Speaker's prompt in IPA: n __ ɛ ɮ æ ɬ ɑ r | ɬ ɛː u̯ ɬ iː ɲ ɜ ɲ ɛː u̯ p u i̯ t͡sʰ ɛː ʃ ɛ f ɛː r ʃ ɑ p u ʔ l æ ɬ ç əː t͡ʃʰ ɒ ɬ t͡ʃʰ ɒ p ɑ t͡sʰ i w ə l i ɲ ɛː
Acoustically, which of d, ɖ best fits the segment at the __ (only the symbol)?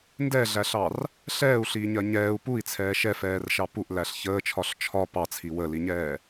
d